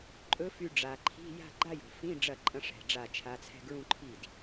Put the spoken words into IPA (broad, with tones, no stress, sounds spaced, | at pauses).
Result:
ǃʼ ɵ˧˥ f y˧ ɖ͡ʐ a˨˩ ǃʰ i̤˧˥˧ j a̤˥˧ ɡ͡ǃ a˥˧ j o̤˨˩ f ĩ˧˥˧ ɖ͡ʐ ɐ˥˩ ǃʼ ɐ̃˧˥ ʂ ɛ̤˨˩ ɖ͡ʐ a˥˩ t͡ʃʰ a˧˥ t͡sʰ ɛ̤˥˧ ɡ ɹ ũ˥˧ ǃʰ i˥˩ d